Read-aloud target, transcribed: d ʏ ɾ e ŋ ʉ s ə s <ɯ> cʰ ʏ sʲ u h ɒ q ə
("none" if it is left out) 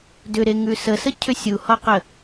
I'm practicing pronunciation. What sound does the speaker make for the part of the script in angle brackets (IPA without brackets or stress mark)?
ə